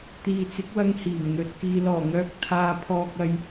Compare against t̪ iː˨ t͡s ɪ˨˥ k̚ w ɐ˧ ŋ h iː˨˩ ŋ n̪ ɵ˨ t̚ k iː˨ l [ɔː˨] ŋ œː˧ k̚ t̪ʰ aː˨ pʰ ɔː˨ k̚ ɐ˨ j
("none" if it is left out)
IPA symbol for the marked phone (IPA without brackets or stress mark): ɔː˨˩